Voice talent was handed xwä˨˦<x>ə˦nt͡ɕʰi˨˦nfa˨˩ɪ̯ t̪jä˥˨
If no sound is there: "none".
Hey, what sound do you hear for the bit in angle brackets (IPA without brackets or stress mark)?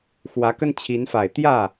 k